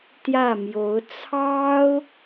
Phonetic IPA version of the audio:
t̪ j ä˥˩ m j o˧˥ ʊ̯ t͡sʰ ɑ˥ ʊ̯

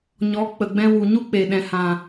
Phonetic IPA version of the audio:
ɲ ɔ˨˦ k͡p ə˨ ɡ͡b ɛ̃˧ w u˨ ɲ u˦ k͡p e˨ ɗ ɛ̃˨ h ã˨

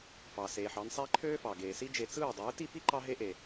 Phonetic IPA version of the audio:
f ɑ˨ s eː˨ ħ ɑ˧ n sˤ æ˦ ǃʰ øː˦ f ɑ˨ ɡ eː˨ s i˦ d͡ʒ e˧ t͡s ɯː˦˨ dˤ ɯː˨˦ t i˦ p i˦ ǃ ɑ˦ ɦ e˦ ʔ e˨

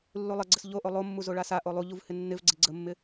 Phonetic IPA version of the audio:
lː u lˠ ə ɡ͡ǀ ə s ʎ o ʔ o lˠ o mː u z o ɭ a s a ʔ o lˠ u ʎ u v h ɪ nː ɪ v ɡ͡ǀ ɪ ɡ͡ǀ ə mː ɪ

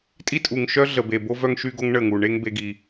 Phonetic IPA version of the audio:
tʼ i˦ tʼ u˨ ŋ ʃ œ˦ ɮ ə˨ b e˨ b o˦ v œ˦ ŋ ʃ y˦ ɡ o˦ ŋ ɳ ə˦˨ ŋ u˨ ɳ e˦ ŋ b e˦ ɡ i˦

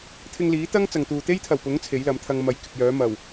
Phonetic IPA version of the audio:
t̪ʰ ɪ˧ ŋ l iː˨˥ t̪ ɐ˥ ŋ t͡s ɐ˨ ŋ t̪ uː˨ t̪ e˥ j t̪ʰ ɐ˨˩ w p ʊ˨˥ ŋ t͡sʰ e˨˥ j l ɐ˨˥ m t̪ʰ ɐ˧ ŋ m ɐ˨˧ j k ɪ˨ k̚ j œː˨˥ m ɐ˨˩ w

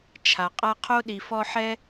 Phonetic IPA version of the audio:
t͡ʃʰ a˩ qʼ a˦ qʰ o˥ ɗ i˨ f ɔ˦ ħ ɛ˥

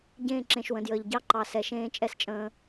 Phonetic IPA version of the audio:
ɟ ẽː˦˨ ǁ ẽ˨ ʃ w ə̃˨ d j əː˨ ʎ ɟ ɑ˦ ǃ ɑ˨ s ɛ˨ ʃ ẽː˦ t͡ʃʼ ɛ˦ s t͡ʃʼ ə̃ː˦

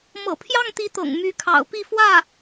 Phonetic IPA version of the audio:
m ɤ̰˨˩ pʰ j ɑ˥˩ ŋ t̪ i˧˥ t̪ ɤ̰˨˩ ŋ m y˧˥ kʰ ɑ̰˨˩ ʊ̯ p i˥˧ f w ä˥˩

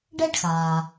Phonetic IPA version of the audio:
ɖ ɛ˥ ɖ x aː˩

